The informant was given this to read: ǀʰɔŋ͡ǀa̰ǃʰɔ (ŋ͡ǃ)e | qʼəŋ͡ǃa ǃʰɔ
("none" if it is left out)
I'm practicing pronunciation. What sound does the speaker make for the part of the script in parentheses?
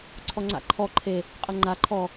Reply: ǃʰ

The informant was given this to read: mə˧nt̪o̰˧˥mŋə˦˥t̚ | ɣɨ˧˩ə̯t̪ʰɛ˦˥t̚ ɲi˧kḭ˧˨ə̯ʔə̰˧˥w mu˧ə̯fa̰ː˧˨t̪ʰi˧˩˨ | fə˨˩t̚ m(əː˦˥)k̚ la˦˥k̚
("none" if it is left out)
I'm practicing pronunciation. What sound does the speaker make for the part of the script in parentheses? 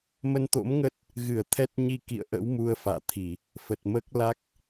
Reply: əː˦˥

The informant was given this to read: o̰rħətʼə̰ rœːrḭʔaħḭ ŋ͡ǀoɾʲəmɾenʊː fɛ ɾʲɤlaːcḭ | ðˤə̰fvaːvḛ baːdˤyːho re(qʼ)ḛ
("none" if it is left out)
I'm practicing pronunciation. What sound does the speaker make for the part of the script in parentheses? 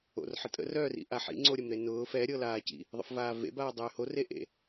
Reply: ʔ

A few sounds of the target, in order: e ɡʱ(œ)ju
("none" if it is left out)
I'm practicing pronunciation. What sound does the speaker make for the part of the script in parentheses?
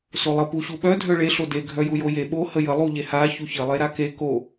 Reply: œ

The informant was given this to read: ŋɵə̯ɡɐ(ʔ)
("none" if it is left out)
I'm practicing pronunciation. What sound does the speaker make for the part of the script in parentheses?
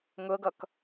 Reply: k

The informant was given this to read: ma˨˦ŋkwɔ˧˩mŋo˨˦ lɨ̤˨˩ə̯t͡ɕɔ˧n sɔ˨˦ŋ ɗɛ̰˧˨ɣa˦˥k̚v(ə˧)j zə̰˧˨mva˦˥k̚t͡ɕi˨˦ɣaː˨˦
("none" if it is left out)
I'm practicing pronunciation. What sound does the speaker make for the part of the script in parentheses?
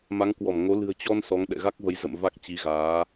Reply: ə˨˦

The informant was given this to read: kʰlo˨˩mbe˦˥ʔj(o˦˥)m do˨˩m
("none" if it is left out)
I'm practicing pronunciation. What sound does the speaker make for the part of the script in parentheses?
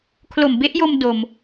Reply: o˧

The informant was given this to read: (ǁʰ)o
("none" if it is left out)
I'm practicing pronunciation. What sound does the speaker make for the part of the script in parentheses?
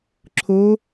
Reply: ǁʰ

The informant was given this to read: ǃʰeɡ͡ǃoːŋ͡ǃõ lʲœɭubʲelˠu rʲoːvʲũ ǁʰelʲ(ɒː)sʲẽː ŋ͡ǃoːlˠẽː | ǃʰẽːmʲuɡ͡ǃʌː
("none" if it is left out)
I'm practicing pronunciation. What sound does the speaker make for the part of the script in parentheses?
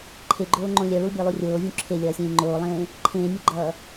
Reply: ʌː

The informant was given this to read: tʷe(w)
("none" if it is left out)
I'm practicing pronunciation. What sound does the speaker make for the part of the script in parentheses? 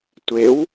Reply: w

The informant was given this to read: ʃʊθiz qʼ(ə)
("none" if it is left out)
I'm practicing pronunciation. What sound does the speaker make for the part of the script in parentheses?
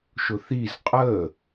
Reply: ə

